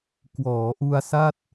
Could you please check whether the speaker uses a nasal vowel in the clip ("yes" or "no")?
no